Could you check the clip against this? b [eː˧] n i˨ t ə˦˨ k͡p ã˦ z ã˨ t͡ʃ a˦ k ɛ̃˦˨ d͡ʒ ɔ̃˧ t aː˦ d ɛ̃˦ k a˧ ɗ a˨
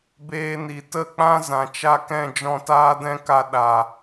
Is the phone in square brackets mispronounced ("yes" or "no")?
no